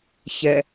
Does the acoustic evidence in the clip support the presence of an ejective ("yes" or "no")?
no